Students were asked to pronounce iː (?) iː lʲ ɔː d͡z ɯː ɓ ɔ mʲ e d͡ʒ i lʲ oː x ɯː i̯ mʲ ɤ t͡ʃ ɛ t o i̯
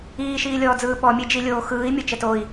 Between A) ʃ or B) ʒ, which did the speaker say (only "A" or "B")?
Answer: A